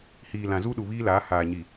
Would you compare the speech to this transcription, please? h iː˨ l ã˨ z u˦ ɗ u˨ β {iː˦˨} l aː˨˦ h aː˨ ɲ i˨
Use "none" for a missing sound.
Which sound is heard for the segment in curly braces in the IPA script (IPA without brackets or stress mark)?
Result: iː˦